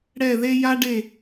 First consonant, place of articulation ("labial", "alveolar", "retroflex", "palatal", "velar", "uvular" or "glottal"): retroflex